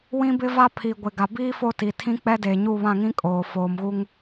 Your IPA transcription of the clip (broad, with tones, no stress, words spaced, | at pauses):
wĩ˦bɪ˦va˦pʰi˨ ɡʷɪ˨ɡa˨biː˦ fo˦ti˨tʰĩ˦ k͡pɛ˦deː˨ɲu˦˨ βã˦˨ŋĩ˦ kʼoː˨ foː˨mɣu˦ŋ